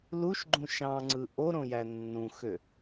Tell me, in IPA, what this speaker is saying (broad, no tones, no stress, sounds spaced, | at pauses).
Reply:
l u ʃ ɡ͡ǃ ũ ʃ ɑ̃ ŋ͡ǀ ɯ ʔ o ɾ õ j æ nː ũ x ø